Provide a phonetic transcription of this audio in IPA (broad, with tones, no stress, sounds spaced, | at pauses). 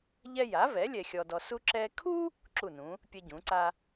ʎ ɛ˥ j a˩˥ v ɛ˩˥ lʲ ɛ˧ xʲ ɔ˧ d ɔ˧ s u˥ ǁ ɛ˧ kʰ u˥ | ǁ u˥˩ n ũ˩˥ | pʲ ɛ˥ ɟ ũ˩˥ ǀ a˥